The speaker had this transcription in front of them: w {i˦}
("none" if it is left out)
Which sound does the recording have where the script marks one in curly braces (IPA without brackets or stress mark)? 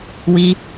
i˦